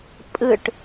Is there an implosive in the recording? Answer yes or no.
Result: no